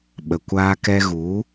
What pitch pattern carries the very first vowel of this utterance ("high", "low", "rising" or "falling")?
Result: low